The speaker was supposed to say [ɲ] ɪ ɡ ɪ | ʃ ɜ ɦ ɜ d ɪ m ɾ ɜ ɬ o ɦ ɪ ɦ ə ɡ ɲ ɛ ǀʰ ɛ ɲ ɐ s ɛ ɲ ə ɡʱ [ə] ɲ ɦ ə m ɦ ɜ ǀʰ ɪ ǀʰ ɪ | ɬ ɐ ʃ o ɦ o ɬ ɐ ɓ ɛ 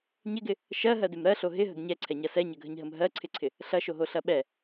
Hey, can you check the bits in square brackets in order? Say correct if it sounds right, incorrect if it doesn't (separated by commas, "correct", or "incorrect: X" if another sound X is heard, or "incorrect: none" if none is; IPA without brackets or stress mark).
correct, correct